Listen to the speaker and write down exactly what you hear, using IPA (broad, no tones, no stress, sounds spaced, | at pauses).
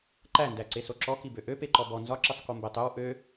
ǃ æ n d æ ǀ e s o ǁ ɔ k i b ø ʔ ø p e ǃ ɔ b ɔ n z ɒ ǁ i sˤ k o m b e tˤ ø w ʔ ø